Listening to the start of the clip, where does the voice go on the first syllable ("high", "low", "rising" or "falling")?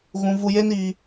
low